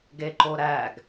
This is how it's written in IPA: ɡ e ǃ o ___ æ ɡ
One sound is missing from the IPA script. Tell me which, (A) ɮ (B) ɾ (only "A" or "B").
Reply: B